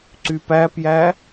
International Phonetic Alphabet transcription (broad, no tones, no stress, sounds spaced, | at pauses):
ǀ y p æ p j æ